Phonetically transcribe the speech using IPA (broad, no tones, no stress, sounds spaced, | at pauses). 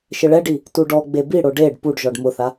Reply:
ʃ ɪ ɭ ɛ ɖ i | t u ɖ ɔ ɡ͡b e b i ɽ o ɖ e ɖ p u ɖ ʒ ɔ ɖ m ʊ θ a